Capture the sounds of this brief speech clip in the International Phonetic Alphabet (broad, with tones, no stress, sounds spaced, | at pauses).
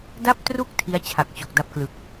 d a˥˩ p̚ t r u˥˩ k̚ tʰ i˦˥ a̯ t͡ɕʰ a˨˩ k̚ t͡ɕ o˨˩ k̚ d a˦˥ p̚ k l ɯ˨˩ k̚